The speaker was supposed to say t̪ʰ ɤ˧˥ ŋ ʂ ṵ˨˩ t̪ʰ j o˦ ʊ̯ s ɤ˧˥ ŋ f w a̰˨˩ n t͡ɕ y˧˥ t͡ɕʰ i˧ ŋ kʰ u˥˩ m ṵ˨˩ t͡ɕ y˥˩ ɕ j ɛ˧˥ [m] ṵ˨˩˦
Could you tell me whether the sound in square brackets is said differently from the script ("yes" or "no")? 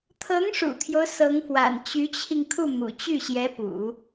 yes